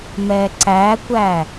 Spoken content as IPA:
m ɛː ǀ æː kʷ æ

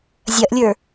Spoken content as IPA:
zʲ ɐ ʔ lʲ ə˞

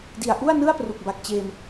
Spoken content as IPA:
d i˨˩ a̯ ʔ u˥˩ a̯ n ɯ˥˩ a̯ p r u˨˩ k̚ b a˨˩ k̚ t͡ɕ eː˧ m

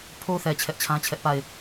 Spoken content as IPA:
pʰ o˦ θ ɛ˨ t͡ɕʰ ɛ˦ ʔ t͡ɕʰ ã˦ t͡ɕʰ ɛ˦ ʔ p a˦˨ ɪ̯

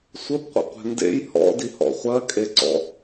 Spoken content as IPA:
sʷ ə b qʷ ə̰ qʷ ɛ̤ n d ḛ j h ɔ̰ d i h ɔ̰ χʷ ɜ kʼ e ǀ ɔ̰

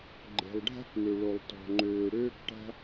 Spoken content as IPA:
ɡ͡ǃ e̤˩ lˠ ɖʱ a̤˥ k m ø˩ ɭ o˩ lˠ t ɔ̤˩ ŋ͡ǃ øː˩ ɽ øː˥ k ʈ a̤˥

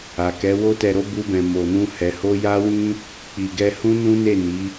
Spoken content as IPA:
a˨ k ɛ˨˦ w o˧ t ɛ˨ ɾ o˧ b u˧ b ɛ̃˨ m o˨ n ũ˧ h ɛ˨ h o˧ j a˦ w ĩ˦ | k͡p i˨ ɡ ɛ˧ h ũ˦ n ũ˦ n e˦˨ n i˨˦

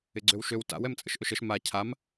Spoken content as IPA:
ɪ ɡ͡ǀ ø w ʃ ø w t a̰ w ɛ m t͡sʼ ə̰ ʃ ʔ ɵ ʃ ə ʃ m a cʰ a m

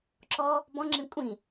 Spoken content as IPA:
ǁ ɔ | b ɔ̃ ŋ͡ǁ ĩ kʷʼ ĩ

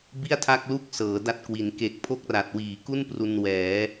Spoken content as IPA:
b i˥˩ a̯ tʰ a˥˩ k̚ l u˥˩ k̚ s ɤː˩˦ d a˥˩ t̚ k w i˩˦ n k e˨˩ k̚ pʰ o˥˩ k̚ r a˨˩ t̚ w iː˩˦ k u˥˩ n p r u˧ n w ɛː˩˦

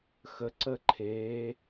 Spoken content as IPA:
x ə ǀ ə ǃʰ eː

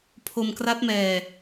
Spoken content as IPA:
pʰ o˧ m k r a˦˥ t̚ m ɛː˧

